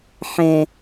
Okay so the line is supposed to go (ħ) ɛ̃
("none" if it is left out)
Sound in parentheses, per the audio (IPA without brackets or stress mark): ħ